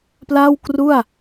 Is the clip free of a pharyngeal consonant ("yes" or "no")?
yes